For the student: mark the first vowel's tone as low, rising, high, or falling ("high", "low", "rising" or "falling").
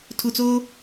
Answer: low